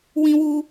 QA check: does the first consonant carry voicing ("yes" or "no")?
yes